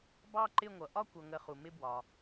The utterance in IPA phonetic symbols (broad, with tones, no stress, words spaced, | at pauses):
bɑ˦˨ǃɪ˦˨ŋʷʌ˩ ʔɒ˦˨ kʷʌ˩ŋə˩ χu˩mɪ˦˨bwɒ˩